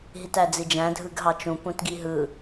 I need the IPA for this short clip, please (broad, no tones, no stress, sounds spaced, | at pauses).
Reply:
ɦ i t æ d͡z i d͡ʒ æ̃ dʱ ɯ ɡ ɦ ɑ t͡ʃ ũ p ũ t ɡ i ɦ ɯ